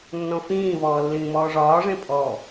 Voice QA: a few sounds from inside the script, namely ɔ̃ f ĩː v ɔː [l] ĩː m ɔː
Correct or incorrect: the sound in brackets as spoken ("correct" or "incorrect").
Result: incorrect